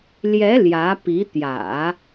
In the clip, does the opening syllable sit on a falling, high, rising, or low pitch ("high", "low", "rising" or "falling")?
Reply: rising